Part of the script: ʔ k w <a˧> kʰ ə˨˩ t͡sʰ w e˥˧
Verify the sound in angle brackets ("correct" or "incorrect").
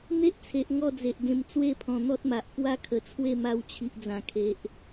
incorrect